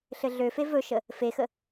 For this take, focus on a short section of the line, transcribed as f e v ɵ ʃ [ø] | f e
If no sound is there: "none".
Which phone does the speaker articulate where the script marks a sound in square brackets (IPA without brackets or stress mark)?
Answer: ə